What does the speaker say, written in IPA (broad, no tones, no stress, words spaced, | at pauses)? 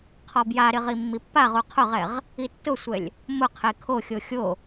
qʰɔbjaɾɪ ʁimːipːaʁu qʰʊʁɛʁ | itːʊsʷɛlʲ | mʊqʰe kʰoxʲo xʲo